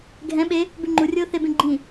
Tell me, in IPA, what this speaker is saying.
ɡʱ ɛ̃ ɓ e | b ʉ ŋ͡ǃ u rʲ oː θ e b ẽ ɡ͡ǃ ĩ

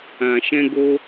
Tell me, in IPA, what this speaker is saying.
ã˨ ʃ ɛ̃˧ ɡ o˦

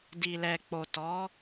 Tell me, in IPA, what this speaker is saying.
d i˨ l ɛ˨ k͡p o˨ t ɔ˨˦

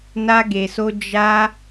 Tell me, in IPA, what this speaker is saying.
n a˧ ɡ e˨ s o˧ d͡ʒ a˧

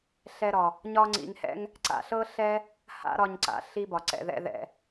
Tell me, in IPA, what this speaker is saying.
ɬ ɛ˧ ɾ ɒ˩ | ɲ ɒ˥ ŋ͡ǀ ḭ˧ ŋ h ɛ̰˥ ŋ | ǀ a̰˧ ɬ ɤ˥ ɬ ɛ˥ | h a̰˥ ɾ ɒ˧ ɲ ǀ a̰˩ ɬ i˥ b ɒ˩ ǀ ɛ̰˧ ð ɛ̰˥ ð ɛ̰˧

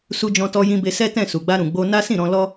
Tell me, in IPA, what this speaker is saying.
s u˧ d͡ʒ ɔ̃˧ t ɔ˧ j ĩ˧ b e˧ s ɛ˦ t ɛ̃˦˨ s u˨ ɡ͡b a˧ ɾ ũ˨ ɡ͡b o˧ n a˦ s ĩ˦˨ ɾ ɔ̃˧ l ɔ˦

